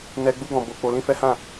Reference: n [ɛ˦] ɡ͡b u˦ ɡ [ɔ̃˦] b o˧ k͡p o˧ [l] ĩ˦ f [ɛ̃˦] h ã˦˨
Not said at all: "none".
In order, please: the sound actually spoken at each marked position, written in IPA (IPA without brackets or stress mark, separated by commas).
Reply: ɛ˦, ɔ̃˧, l, ɛ˦